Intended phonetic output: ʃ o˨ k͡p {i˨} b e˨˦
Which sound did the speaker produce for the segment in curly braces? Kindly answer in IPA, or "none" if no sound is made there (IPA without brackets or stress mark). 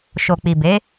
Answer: i˨